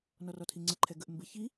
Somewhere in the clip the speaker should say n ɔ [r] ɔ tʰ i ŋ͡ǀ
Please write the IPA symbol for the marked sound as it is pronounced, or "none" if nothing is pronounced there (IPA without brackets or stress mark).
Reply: r